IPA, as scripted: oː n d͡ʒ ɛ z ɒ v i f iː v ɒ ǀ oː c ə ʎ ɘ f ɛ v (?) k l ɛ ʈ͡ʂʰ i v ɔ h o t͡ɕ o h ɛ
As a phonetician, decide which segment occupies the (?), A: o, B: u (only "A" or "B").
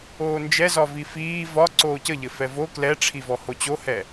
A